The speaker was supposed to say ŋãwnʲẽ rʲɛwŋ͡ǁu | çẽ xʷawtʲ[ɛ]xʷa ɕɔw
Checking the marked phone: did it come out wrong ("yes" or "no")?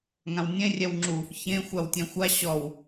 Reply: yes